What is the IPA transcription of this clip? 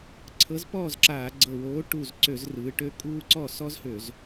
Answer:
ǀʰɤ˨˥zpɔː˥˩zǁaː˧˩˧ ɡ͡ǀɤ˧˩woː˨˥ ʈu˧˩z ǀø˧˩˧zrɯː˩˧ ʈø˨˥ kʼuː˦ǀɔ˥˩ sɔ˦zhø˧˩˧z

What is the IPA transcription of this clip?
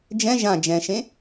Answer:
d͡ʒɛ̃ ʒã d͡ʒɛ̃ʃẽ

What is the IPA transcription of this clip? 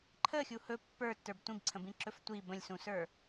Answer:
ǃʰəxʲu hɵ pːə˞tːə˞b tʷĩbǀʰə̃bĩǁɵf tʷi bə̃lʲsũsə˞

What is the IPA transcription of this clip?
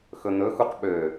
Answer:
xɵn̪ɵ xuqɓø

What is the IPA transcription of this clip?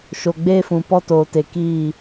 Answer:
ʃo˨ɡ͡beː˦fũ˨ pɔ˦toː˨te˨ kiː˦˨

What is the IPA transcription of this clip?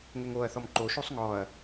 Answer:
ŋɛŋoɐ̯θɔm ǃoʃosˤ ŋɔɐ̯

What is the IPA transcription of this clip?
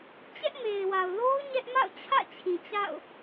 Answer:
t͡ɕɛ˦ʔme˨ɪ̯wa˨ʊ̯lo˦ʊ̯ ɲɛ˦ʔma̰˦˨ʊ̯t͡ɕʰä̰˦˨t͡ɕʰĩ˨ t͡ɕa̰˦˨ʊ̯

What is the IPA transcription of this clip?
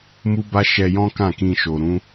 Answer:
mu˦ba˦ ʃɛ˧jɔ̃˦kã˦˨ kĩ˧ʃo˨ ɾũ˨˦

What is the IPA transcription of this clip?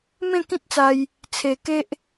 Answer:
mẽ˥˧kĩ˦t̚t͡sa˧j | t͡sʰe˧ ke˦ʔ

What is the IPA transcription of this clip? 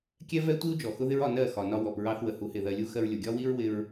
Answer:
kʲɛ˦vɛ˦tʷi˦u̯ d͡ʒɔ˨xʊ˦ðɪ˦ɹɒ˧ nɜ˦˨ xɒ˨nɒ˧wɔ˨p ɹɑ˧θwə˨ hu˨˦hɪ˨ðɜ˧lʲu˦ xɜ˧ɹlʲʊ˨ɡʲɒ˦wi˦ɹ wɪ˧ɹ

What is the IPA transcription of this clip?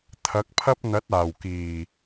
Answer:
t̪ʰɐ˨˥k̚pʰɐ˥p̚ n̪ɐ˨˥t̚ aː˨˩wkiː˨˩

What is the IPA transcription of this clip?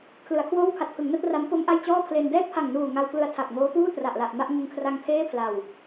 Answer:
kʰlɯ˩˦a̯kʰwoː˥˩w kʰa˨˩t̚pʰɯ˩˦ŋna˥˩t̚ ra˦˥m po˦˥m ʔa˥˩j t͡ɕɔː˥˩pʰle˧n dɛː˥˩t̚pʰa˨˩ŋnuː˨˩ ŋa˧wklɯ˧a̯ tʰa˨˩k̚ŋoː˦˥puː˥˩ tra˨˩ʔla˨˩ʔ ma˥˩ʔŋɯ˧ŋkʰra˧ŋ pʰeː˥˩pʰla˨˩w

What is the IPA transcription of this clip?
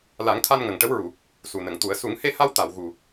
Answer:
la˨˩˦ŋt̪ʰa˧n ŋə˨˩ŋʈə˧˥wɹu˨˩˨ | su˨˩nə˨˩˨ŋt̪u˨˩˦ə̯ su˨˩˦ŋhe˧ha˧w t̪a˨˩˨wɣu˨˩

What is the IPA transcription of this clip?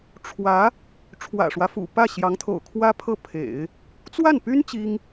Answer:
ʈ͡ʂʰwä˧˥ | ʈ͡ʂʰwä̰˨˩ʂwä˦fṵ˨˩ pä˥˩ɕjɑ˧˥ŋt̪ʰo̰˨˩ʊ̯kʰwä˥ pʰɤ˥˩pʰḛ˨˩˦ɪ̯ | t͡swa˥˩npy˥n t͡ɕi˥ŋ

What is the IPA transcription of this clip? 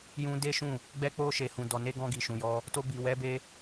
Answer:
jũ˧ de˦ʃũ˦˨ | ɡ͡bɛ˧k͡po˧ ʃe˨hũ˨dɔ˨ne˧ ɡɔ̃˧ɡi˨ʃũ˨jɔ˧ | to˧bi˨wɛ˨˦ be˦

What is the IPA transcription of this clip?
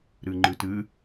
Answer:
ɾɨŋ͡ǃɨtɨ

